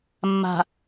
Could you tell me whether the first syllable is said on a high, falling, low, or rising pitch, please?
low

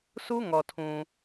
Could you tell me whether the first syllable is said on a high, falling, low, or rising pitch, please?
high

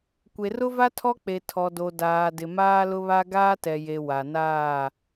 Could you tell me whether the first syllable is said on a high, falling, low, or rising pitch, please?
low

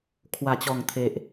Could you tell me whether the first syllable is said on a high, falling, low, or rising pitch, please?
low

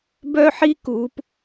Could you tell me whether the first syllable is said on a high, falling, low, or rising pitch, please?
high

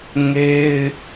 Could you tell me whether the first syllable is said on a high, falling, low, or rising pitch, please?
high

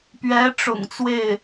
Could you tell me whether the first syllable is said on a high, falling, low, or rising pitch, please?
rising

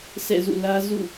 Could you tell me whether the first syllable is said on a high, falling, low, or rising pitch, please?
falling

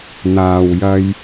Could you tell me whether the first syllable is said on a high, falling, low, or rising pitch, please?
low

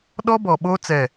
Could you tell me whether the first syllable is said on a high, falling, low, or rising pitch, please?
high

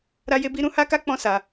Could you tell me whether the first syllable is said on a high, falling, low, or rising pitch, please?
high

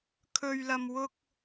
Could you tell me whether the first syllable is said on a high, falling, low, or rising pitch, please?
low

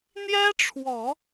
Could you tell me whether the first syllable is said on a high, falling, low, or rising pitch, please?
high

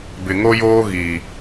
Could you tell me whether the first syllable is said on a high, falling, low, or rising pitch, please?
low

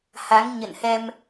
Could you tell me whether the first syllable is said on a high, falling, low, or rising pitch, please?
rising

